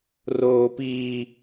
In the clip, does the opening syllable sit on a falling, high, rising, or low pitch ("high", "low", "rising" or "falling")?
high